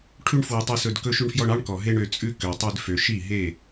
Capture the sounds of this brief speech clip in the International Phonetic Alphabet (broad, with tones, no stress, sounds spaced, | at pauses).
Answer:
ʈʰ ʉ˧ ɳ f w ɛ˨ tˤ i˨ s ɵ˨ d k ɵ˧ ʃ ʉ˧ ɳ f j ɔ˧ ɳ ɑ˦ ɳ k ɔ˨ ɦ e˧ ɳ ø˨ t͡sʼ ʉ˧ k ø˨ tˤ ʉ˧ d f ø˨ ʃ i˦˨ ɦ e˦˨